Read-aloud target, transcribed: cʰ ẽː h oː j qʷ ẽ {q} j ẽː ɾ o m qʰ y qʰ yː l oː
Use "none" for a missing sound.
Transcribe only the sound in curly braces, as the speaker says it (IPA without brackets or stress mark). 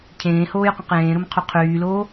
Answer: q